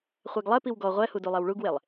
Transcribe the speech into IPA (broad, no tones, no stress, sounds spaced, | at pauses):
χʷ ɛ ɡ lˠ ɛ p i w ɡ ɔ ʁʷ ɛ h u d u lˠ e w ɭ u ɡ w e lˠ